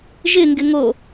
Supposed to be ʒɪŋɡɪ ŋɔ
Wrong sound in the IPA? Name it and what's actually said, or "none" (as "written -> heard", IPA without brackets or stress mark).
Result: ɔ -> o